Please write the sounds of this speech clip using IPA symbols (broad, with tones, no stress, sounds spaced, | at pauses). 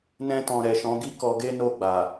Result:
n ɛ̃˧ t ɔ̃˨ ɾ ɛ˨ ʃ ɔ̃˨˦ ɡ i˦ k ɔ˧ ɡ e˦ n o˦˨ ɡ͡b a˨